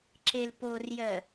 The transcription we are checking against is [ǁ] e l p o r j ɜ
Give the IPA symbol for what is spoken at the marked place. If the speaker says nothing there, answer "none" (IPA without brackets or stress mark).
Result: ǁ